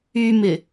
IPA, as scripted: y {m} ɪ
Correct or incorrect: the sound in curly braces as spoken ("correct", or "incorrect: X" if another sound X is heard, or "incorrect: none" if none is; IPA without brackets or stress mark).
correct